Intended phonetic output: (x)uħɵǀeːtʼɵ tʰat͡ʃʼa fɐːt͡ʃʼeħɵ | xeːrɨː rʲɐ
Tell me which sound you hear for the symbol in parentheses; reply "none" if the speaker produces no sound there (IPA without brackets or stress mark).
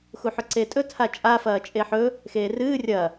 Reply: x